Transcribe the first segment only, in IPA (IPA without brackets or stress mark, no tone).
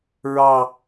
ɹ